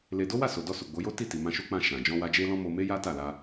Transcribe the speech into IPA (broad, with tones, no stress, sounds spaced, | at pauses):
l e˧ d o˦ w a˦˨ s o˨ d ɔ˧ s u˨ ɡ͡b o˨˦ j o˦ t i˦˨ t i˨ m ã˧ ʃ u˦ k͡p ã˦˨ ʃ ã˨ d͡ʒ ɔ̃˧ w a˧ d͡ʒ e˦ l ɔ̃˦ m o˧ m e˦ j a˦ t a˦˨ l a˧